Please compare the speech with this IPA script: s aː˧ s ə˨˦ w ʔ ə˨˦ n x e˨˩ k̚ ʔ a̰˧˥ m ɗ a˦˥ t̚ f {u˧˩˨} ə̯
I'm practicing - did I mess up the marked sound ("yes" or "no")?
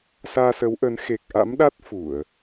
no